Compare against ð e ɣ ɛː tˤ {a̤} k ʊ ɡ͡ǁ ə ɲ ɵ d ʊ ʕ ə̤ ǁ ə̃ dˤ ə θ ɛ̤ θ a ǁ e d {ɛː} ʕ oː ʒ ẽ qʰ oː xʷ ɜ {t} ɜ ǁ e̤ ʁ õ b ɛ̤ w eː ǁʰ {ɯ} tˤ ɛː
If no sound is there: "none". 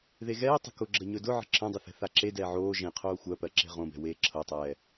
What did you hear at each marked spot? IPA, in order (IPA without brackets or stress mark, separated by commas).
ə̤, ɛː, p, ɤ